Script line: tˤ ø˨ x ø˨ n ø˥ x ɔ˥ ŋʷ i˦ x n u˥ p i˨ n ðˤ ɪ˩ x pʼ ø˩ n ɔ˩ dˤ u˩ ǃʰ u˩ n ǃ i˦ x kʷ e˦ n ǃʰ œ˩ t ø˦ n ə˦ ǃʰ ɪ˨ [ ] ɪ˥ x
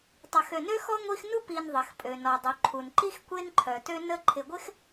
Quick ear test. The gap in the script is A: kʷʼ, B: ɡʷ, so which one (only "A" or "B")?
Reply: B